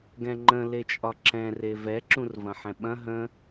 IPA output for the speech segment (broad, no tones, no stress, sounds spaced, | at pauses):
ɡ ɛ̃ ŋ͡ǃ ə̃ l e t͡ʃʼ ɒ ǁ ɛ̃ r e v ɛ ǁ ũ r v ɐ̃ ħ ɛ̃ ɓ ɐ̃ ɦ ə̃